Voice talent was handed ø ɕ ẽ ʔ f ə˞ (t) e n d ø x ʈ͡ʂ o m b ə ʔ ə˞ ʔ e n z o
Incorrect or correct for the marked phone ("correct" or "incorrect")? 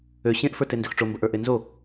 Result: correct